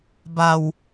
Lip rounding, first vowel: unrounded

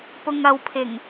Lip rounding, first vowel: rounded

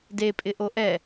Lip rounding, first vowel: unrounded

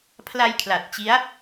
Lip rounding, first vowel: unrounded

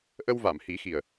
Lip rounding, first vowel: unrounded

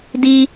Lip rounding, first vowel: unrounded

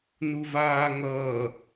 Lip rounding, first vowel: rounded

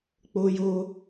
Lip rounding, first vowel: rounded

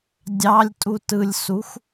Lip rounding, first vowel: unrounded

